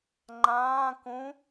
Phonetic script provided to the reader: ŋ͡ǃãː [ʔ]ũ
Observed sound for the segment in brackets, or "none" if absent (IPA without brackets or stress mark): k